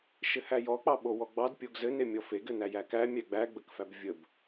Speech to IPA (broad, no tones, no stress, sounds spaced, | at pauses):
ʃ ɘ h æ j ɔ k͡p ɑ ɓ o w ɔ ɡ͡b ɑ d pʲ o ɡ z ɘ n e mʲ ɔ f e ɡ ɘ n æ j æ k æ mʲ æ ɡ͡b æ ɡ͡b ə k f æ b vʲ ə b